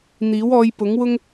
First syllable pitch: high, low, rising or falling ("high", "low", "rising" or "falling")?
rising